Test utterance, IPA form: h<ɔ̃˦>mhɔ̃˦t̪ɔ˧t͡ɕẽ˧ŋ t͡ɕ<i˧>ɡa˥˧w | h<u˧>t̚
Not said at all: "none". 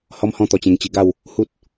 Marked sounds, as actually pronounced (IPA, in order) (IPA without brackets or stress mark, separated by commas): ɔ˦, i˧, u˦